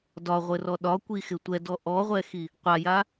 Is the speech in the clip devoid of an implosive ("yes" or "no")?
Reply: no